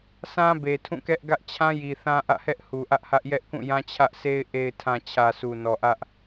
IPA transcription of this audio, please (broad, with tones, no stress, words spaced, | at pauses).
sã˦be˨ tʰũ˦˨kɛ˦ʔ ɡä˦ʔt͡ɕʰã˦ji˨ θã˦ʔä̰˦˨hɛ˦ʔ hu˨ʔä˦ʔhä˦ʔ jɛ˦ʔkũ˦˨jã˦ t͡ɕʰä˦ʔsʰe˦ɪ̯ ʔe˨ɪ̯tʰã˨ t͡ɕʰä˨ su˨nɔ˨ʔä˦ʔ